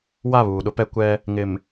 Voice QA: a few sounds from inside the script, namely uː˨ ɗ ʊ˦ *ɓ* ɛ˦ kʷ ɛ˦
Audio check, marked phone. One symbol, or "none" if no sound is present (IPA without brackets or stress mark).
p